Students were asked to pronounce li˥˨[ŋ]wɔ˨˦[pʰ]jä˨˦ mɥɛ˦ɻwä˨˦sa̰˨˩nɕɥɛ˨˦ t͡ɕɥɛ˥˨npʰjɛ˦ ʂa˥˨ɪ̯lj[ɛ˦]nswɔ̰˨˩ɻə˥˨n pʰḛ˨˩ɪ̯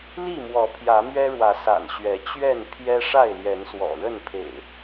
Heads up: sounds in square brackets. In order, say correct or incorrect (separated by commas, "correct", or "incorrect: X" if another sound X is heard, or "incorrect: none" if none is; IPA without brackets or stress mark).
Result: incorrect: m, correct, incorrect: ɛ˨˦